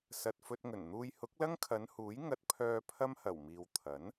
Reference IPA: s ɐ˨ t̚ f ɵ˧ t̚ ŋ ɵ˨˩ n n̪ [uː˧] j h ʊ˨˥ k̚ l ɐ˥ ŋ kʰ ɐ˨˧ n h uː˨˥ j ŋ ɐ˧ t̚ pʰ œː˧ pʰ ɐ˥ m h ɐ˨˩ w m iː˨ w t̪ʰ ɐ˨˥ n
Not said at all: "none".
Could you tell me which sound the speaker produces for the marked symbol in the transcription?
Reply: uː˧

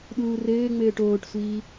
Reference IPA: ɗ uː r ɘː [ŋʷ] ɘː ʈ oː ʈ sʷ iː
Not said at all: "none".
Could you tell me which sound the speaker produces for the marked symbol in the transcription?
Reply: ŋ͡m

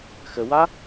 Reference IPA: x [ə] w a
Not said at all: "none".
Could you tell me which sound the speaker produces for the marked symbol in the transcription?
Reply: ə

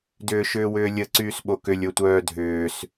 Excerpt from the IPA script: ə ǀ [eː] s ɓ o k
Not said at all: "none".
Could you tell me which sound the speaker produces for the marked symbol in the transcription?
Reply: yː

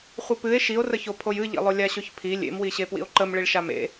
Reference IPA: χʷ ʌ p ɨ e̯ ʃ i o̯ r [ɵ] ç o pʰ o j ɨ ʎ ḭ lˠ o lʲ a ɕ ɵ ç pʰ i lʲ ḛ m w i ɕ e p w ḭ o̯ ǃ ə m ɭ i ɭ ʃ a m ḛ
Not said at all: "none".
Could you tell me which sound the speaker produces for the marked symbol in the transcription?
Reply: ə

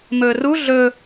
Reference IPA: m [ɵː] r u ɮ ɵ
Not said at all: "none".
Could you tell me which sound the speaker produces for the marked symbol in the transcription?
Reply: ɵː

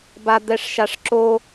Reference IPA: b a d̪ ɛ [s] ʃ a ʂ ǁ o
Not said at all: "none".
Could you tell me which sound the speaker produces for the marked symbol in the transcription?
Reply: ʂ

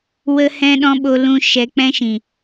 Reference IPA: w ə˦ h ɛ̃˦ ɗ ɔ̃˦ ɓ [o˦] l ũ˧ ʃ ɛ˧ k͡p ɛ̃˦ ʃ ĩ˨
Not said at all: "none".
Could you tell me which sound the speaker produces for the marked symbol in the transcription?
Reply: o˧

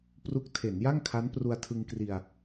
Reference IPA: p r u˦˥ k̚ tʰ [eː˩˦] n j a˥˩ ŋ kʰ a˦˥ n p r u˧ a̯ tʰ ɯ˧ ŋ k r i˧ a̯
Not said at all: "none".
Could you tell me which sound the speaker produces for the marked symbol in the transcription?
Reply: e˩˦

